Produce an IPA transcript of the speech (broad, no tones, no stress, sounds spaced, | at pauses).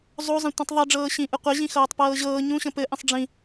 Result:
zˤ o zˤ ə̃ tʷ ĩ tˤ ðˤ i ɖ͡ʐ ɤː ɕ ĩ ʔ ɯ qʷ ə ʑ ĩ x ɤː tˤ p ɤː ʑ ɤː ɲ ũ ɕ ə̃ p ɘ ʔ ĩ sˤ ɖ͡ʐ ĩ